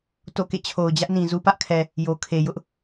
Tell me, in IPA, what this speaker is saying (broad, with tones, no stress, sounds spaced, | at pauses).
t o̰˦˨ k ḛ˦˨ t͡ɕʰ o˨ ʊ̯ d͡ʑ ä˦ ʔ n ĩ˨ z u˦ p ä˦ ʔ kʰ ɛ˨ | j o˨ kʰ e˨ j ʊ˦ ʔ